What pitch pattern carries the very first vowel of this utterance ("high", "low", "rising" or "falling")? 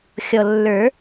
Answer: low